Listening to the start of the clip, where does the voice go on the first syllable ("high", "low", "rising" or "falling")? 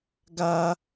high